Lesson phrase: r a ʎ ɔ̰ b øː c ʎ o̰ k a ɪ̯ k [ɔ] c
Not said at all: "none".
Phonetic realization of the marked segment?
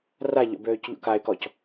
ɔ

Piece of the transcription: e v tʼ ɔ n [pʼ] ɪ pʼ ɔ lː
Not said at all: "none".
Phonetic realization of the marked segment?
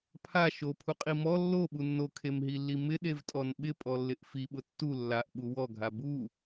ɓ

